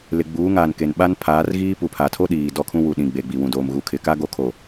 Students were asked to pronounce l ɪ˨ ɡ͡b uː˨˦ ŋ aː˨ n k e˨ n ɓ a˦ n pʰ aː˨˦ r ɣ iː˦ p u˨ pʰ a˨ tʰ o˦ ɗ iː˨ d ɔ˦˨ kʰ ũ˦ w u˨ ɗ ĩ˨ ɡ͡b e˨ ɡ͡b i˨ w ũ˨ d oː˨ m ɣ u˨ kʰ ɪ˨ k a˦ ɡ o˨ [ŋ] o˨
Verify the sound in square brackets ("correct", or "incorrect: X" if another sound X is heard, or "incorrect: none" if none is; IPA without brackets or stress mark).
incorrect: kʰ